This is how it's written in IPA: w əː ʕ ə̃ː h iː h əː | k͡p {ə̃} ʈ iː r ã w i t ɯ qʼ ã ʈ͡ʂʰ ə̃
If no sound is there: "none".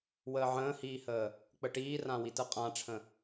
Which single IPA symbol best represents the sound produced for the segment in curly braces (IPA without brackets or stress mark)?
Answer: ə